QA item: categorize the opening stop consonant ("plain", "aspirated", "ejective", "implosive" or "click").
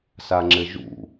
click